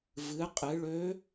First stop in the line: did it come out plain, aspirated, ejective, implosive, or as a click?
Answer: ejective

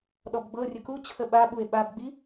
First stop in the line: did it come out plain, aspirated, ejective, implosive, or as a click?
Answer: implosive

